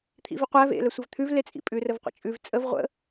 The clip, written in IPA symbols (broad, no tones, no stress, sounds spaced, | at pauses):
t̪ʰ ḭ v i qʷ æ v ḛ l ə sʷ ə v t̪ʰ ʉ v l e t͡sʼ ḭ pʼ ʉ r ə v qʷ ə̰ t͡ʃʼ ʉ v t͡sʼ ə v ʁʷ ə̰